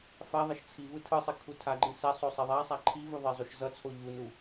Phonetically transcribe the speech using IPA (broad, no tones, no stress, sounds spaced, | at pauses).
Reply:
f a ðˤ ʌ ʃ t͡sʰ i v ɯ tʰ ɯ sˤ i kʰ u tʰ a ɡ͡ǃ i s ɛ sˤ o sˤ ɛ ðˤ a sˤ a ǃʰ i v u ðˤ ɛ zˤ u ʃ z ʌ t͡sʰ o ʎ u n u